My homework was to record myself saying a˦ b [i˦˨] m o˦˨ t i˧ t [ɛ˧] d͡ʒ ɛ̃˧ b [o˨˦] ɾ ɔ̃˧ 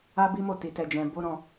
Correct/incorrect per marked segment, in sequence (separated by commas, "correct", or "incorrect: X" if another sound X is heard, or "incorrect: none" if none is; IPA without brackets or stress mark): incorrect: i˦, correct, incorrect: o˦